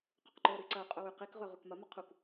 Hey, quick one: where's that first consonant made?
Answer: uvula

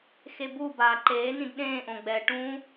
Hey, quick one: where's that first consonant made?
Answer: velum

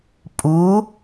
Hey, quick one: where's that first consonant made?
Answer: lips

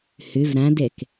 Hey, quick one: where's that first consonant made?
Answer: throat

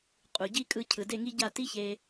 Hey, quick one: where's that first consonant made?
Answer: uvula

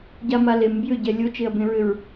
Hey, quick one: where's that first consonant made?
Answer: palate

